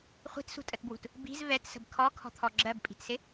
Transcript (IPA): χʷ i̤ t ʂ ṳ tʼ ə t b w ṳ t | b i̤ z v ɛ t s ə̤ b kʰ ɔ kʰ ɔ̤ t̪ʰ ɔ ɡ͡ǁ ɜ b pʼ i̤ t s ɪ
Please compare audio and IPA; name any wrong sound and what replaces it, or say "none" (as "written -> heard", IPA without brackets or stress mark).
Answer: ʂ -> s